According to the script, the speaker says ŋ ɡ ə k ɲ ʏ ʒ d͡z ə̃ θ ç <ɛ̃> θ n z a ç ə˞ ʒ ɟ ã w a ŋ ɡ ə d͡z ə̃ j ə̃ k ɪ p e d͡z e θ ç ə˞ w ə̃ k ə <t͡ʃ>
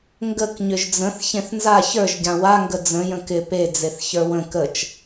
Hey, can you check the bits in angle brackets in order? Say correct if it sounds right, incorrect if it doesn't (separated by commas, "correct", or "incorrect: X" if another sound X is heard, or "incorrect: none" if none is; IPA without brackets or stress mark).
incorrect: ẽ, correct